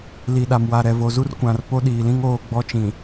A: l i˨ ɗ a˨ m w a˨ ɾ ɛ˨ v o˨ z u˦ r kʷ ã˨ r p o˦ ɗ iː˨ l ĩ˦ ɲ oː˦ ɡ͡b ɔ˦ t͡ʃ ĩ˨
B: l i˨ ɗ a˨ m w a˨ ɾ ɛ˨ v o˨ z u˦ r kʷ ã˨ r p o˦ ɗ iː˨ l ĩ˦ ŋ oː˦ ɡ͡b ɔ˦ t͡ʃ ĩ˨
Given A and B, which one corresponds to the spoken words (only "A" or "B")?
B